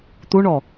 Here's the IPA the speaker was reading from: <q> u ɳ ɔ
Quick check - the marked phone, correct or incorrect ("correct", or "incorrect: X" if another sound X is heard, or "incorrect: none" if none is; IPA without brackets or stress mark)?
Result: incorrect: t̪